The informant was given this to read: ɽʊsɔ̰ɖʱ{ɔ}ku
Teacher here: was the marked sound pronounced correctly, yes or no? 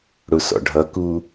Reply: no